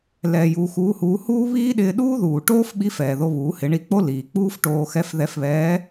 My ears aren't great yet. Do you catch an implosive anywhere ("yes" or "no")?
yes